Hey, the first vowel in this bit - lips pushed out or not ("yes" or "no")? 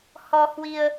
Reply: yes